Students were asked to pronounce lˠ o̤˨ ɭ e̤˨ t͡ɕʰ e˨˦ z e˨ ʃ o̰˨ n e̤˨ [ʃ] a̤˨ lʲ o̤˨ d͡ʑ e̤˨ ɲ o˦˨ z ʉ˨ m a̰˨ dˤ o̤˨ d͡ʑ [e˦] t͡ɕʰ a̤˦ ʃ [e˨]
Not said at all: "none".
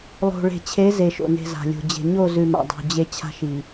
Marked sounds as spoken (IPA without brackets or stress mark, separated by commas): z, e˦, i˨